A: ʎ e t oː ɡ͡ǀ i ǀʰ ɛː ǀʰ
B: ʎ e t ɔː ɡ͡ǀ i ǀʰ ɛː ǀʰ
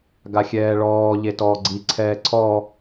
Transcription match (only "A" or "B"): B